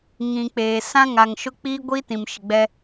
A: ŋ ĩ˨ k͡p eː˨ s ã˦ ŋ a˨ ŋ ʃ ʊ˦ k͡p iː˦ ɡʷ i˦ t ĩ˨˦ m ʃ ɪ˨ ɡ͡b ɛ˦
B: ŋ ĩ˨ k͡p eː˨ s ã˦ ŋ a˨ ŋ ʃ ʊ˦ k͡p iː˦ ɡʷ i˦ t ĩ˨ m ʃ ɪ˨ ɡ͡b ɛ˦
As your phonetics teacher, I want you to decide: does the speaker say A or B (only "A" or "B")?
B